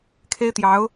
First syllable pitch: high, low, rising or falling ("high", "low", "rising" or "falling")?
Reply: high